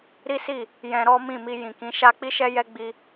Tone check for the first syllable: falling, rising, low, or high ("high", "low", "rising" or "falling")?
high